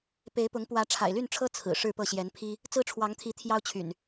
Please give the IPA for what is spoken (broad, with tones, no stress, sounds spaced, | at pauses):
p e˨˦ ɪ̯ p ʊ˨˦ ŋ p w ä˨˦ ʈ͡ʂʰ a̰˨˩ ɪ̯ l y˥˨ n ʈ͡ʂʰ ɤ˦ t͡sʰ ɹ̩˨˩ ʂ ɻ̩˥˨ p ɤ˥˨ ɕ j ɛ˨˦ n pʰ i˦ | t͡s ɹ̩˦ ʈ͡ʂʰ w ɑ˨˦ ŋ t̪ʰ i˨˦ t̪ʰ j ɑ˦ ʊ̯ t͡ɕʰ y̰˨˩ n